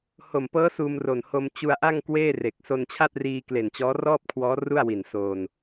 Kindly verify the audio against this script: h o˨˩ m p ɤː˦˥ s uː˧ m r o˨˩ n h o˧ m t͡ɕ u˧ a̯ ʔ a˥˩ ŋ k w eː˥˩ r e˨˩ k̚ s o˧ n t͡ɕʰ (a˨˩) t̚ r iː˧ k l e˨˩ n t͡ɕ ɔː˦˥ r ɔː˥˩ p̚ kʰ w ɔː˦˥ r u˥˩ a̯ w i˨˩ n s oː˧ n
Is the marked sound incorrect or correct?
incorrect